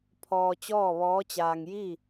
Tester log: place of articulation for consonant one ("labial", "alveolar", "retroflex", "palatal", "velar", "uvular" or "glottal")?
labial